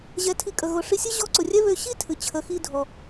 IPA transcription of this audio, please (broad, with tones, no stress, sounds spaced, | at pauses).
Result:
ʑ ɛ˩˧ tʰ i˩˧ kʼ ə˩ ɣ ʊ˩˧ ʂ i˧ sʲ ɨ˥ ʑ ɔ˧˥ ǀ ʊ˩ rʲ ɛ˥ β ø˧ ɕ i˥ tʰ ɨ˩ t͡ɕʰ ə˩˧ x i˧ dʱ ɔ˩